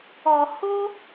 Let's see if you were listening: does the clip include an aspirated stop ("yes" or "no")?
no